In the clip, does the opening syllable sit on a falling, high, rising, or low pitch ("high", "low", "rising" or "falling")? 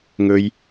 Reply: high